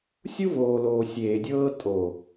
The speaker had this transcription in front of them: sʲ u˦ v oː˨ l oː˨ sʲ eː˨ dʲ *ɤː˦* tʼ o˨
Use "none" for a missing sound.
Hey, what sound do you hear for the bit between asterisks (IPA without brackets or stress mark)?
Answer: ɤː˦